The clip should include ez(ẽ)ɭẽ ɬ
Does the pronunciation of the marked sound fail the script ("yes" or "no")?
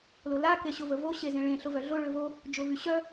no